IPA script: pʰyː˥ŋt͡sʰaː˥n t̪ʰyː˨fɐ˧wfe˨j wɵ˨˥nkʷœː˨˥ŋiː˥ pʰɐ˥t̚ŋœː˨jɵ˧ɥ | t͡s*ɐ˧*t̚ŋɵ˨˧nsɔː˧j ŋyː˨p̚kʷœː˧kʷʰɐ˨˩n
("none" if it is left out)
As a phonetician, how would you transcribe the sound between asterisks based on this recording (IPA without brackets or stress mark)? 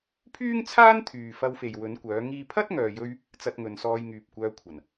ɐ˧